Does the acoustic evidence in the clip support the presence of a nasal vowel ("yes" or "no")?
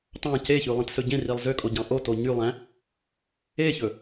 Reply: yes